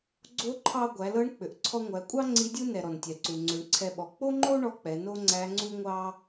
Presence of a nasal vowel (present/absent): absent